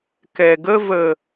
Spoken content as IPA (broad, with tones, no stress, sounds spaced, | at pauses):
k ɛ˨ ɡ ə˦ v ə˨